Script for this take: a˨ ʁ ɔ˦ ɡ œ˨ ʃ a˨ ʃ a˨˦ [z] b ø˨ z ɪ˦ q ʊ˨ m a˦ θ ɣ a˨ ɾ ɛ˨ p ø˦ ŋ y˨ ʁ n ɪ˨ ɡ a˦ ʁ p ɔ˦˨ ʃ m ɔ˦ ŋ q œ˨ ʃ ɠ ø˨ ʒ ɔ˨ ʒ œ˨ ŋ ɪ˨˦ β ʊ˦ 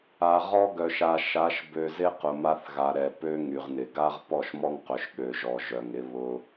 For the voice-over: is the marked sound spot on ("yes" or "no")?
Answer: no